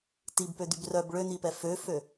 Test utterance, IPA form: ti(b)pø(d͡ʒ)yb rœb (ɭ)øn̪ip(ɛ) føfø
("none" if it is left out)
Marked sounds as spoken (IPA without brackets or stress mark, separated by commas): b, d̪, ɭ, ɛ